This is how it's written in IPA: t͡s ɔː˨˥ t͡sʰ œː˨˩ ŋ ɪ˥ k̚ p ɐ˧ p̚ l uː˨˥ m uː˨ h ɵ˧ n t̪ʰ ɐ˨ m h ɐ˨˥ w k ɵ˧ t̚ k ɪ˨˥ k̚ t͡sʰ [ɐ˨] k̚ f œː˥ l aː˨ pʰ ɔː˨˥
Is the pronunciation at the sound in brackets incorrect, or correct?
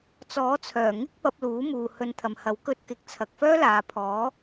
correct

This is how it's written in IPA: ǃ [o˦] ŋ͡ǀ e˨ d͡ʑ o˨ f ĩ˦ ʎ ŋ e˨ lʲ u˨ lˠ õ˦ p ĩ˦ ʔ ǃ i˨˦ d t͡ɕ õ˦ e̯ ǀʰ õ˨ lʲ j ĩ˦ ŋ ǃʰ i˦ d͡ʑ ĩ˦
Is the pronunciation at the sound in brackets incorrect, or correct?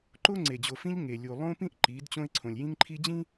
correct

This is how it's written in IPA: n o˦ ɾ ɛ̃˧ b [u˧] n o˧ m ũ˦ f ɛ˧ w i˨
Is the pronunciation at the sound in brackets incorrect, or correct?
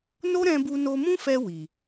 correct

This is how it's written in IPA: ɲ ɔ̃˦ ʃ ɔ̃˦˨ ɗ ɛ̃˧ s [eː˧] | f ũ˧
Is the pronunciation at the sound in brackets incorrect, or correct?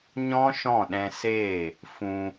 incorrect: eː˦˨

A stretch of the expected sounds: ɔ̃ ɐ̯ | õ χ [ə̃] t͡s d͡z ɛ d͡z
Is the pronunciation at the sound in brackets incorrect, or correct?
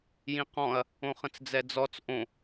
correct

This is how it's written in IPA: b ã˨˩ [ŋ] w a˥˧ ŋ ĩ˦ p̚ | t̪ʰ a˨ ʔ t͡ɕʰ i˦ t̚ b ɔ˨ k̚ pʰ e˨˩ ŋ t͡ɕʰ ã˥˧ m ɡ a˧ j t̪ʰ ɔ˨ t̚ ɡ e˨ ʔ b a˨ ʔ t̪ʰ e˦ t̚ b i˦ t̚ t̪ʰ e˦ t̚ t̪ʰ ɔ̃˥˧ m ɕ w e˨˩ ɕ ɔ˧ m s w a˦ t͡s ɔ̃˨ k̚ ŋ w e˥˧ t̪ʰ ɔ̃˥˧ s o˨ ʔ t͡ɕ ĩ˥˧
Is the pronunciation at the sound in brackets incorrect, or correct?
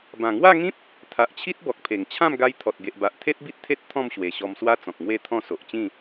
correct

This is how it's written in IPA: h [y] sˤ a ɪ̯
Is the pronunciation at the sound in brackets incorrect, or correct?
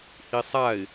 incorrect: i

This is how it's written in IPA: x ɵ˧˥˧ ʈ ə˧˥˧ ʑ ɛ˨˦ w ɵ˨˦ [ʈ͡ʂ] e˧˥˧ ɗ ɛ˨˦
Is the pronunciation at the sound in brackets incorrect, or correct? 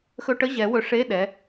incorrect: ʂ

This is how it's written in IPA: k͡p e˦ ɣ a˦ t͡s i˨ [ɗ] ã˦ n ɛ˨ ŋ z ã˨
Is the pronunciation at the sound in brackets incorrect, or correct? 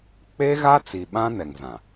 incorrect: ɓ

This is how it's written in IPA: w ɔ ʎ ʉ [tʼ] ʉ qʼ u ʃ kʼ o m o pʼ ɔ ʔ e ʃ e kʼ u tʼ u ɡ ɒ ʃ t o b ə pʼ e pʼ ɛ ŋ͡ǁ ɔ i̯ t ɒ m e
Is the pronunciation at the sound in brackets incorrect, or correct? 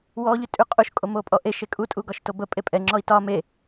correct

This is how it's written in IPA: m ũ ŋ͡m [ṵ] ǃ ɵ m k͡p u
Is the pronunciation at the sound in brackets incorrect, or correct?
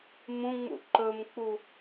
correct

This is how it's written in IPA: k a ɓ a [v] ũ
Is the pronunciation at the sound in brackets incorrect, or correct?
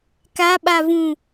correct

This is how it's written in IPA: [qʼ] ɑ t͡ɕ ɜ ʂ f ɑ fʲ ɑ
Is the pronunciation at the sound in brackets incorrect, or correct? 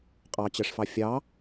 correct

